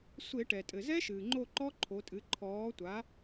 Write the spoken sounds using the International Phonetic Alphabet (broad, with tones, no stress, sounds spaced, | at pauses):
sʷ e˧˩˧ ʈ ɛ˩ tʼ ɘ˩ z ɛ˦˥ ʃ ɨː˩ ŋ͡ǃ o˦˨ ǃ ɔ˦˥ ǃʰ o˩˧ tʼ ɨ˩˧ ǃʰ ɔː˩˧ tʷ a˩˧